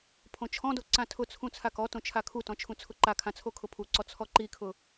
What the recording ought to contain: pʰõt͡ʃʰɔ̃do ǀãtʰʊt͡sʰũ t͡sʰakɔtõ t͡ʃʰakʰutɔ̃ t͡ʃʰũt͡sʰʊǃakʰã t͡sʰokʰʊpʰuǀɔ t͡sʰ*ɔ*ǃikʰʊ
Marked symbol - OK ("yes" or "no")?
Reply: yes